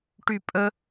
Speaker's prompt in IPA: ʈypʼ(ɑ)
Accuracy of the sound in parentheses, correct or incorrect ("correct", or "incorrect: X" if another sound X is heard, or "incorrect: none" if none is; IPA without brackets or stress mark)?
incorrect: ə